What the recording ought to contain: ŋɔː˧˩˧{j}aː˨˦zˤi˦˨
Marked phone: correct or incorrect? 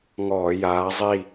correct